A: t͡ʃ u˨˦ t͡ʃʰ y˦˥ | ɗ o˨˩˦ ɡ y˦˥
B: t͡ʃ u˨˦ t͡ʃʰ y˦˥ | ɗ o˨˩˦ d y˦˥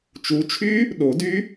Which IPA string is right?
B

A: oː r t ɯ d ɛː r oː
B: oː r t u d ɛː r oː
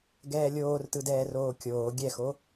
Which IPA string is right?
A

